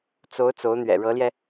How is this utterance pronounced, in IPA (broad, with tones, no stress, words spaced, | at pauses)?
t͡so˧˥ʊ̯ t͡so˧˥ʊ̯n̪ɥɛ̰˨˩ɻɤ˧˥ljɛ˧